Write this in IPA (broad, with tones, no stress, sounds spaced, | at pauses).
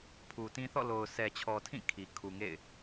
pʰ u˨ t ĩ˦ θ ɔ̰˦˨ l o˨ ʊ̯ sʰ ɛ˨ t͡ɕʰ ɔ˨ tʰ ĩ˦˨ kʰ i˨ kʰ u˨ ŋ ḛ˦˨ ɪ̯